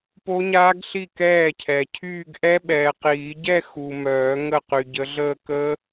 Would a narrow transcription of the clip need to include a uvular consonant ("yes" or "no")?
yes